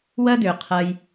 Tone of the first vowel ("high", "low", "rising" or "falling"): high